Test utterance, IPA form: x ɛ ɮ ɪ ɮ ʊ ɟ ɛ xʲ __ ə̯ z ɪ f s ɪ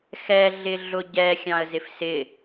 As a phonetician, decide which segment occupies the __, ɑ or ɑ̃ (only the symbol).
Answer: ɑ̃